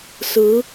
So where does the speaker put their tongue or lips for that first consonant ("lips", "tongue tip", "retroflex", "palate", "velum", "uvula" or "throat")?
tongue tip